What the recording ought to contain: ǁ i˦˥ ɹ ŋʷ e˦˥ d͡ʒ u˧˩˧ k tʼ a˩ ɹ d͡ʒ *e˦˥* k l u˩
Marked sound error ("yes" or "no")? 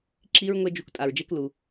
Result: no